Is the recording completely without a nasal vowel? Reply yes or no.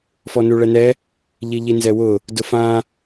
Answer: no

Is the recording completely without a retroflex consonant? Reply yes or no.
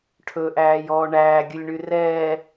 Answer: no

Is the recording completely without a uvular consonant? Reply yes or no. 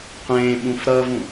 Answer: no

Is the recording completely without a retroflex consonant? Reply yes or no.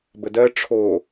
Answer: no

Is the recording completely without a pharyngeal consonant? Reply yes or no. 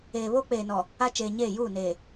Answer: yes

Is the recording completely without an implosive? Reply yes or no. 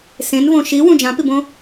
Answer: yes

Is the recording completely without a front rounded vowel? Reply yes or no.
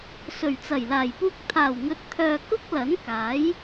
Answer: no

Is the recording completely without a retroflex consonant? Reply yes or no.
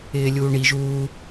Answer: no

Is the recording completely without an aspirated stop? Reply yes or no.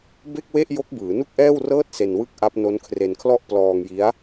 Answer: no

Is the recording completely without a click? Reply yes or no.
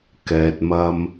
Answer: yes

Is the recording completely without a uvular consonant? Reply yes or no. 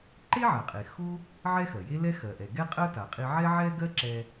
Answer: no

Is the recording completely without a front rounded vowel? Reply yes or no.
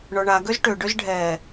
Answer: no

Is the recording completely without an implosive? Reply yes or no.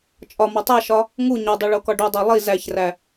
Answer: yes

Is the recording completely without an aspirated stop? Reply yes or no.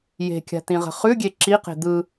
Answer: yes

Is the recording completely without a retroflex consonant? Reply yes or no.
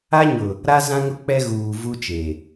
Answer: yes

